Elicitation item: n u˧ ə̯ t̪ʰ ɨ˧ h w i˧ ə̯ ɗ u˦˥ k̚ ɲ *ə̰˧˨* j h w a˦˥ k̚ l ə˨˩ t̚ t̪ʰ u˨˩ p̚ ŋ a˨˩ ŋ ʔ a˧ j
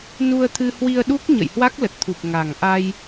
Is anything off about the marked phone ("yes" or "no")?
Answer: no